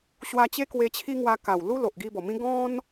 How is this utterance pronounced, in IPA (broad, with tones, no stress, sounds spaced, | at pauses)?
ɕ w a˧ t͡ɕ e˦ k w e˧ t͡ɕʰ i˦ ŋ w a˧ k a˨˩ w l u˦ l o˨ ʔ ɡ i˧ b ɔ˨˩ m ĩ˦ ɡ ɔ̃˦ n